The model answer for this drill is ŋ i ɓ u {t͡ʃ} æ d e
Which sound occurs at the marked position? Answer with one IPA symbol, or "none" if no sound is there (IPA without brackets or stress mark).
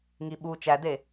t͡ʃ